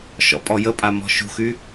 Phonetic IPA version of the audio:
ʃ ɔ̰ pʼ ɔ j ə pʼ a m ɔ̤ ʃ ṳ x y

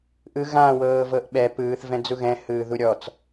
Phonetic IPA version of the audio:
ʔ ɯ ɣ ã w ɤː v ɤ ʔ ɓ ɛ p ɯː θ v ɛ̃ d͡z u ɣ ɛ̃ h ɯː ð u ɾʲ ɔ t͡s

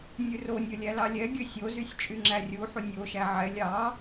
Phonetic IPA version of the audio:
nʲ ʉ r o nʲ ɵ lʲ æ l ɑ lʲ ɛ ɡʲ ɵ sʲ o z y sʲ t͡ʃʼ y ŋ͡ǁ æ rʲ u ħ u nʲ o ʃ æ ʕ ɛ lʲ ɑ

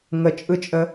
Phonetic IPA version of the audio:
ŋ ə t͡ʃʼ ɯ t͡ʃʼ ə

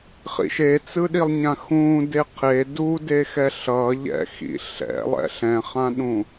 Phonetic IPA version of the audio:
χ ḭ ʃ e t͡s ɯ ɗ i lˠ ɲ ã x ũː d e qʰ e d u d e x ɛ ɬ ʌ ʎ ɛ̰ x ḭ ɬ ɛ̰ lˠ ɛ̰ ɬ ɛ̃ χ ã ɗ ũ

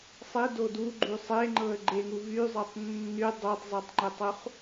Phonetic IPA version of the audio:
sˤ e d o d u ɡ͡ǃ y sˤ e ŋ͡ǃ ɤ ə̯ ɡ͡ǃ e ŋ u v y zˤ ɤ tˤ nː y dˤ o tˤ zˤ e tˤ ŋ͡ǃ e tˤ u χ

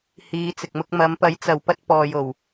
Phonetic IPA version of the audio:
h iː˨˧ t͡s ɪ˨ k̚ m ʊ˧ k̚ m ɐ˨˧ m p ɐ˨˥ j t͡s ɐ˨ w p ɐ˧ t̚ p ɔː˨ j o˨˩ w

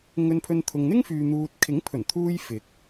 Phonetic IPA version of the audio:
ŋ ɵ˧ n pʰ ɵ˧ n t̪ʰ ʊ˨ ŋ n̪ ɪ˥ ŋ f yː˨ n̪ uː˨ t̚ kʰ ɪ˨˥ ŋ pʰ ɵ˨˩ n t̪ʰ uː˧ j f ɪ˨˥ k̚

